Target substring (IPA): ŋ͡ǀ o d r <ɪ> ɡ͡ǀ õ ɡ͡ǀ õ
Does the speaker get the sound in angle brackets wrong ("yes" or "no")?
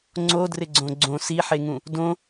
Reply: no